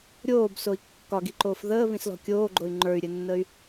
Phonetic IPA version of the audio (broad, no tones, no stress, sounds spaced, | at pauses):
ɾʲ oː b s o i̯ kː ɒ ɡ i ǃ oː f ð əː β ĩ s l ɔ̤ kʲ oː ɡ͡ǃ o y̯ ŋ͡ǃ ə˞ y̯ ɾʲ ɘ nː ə y̯